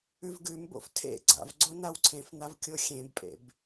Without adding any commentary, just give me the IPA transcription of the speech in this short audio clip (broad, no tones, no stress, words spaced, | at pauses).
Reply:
ʉvɡʉmbo̰f tʰḛ ɡ͡ǀa̰vɡ͡ǀo nawǀʰẽfn̪av kʲoxʲẽbpʼḛb